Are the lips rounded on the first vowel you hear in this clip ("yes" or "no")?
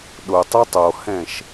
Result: yes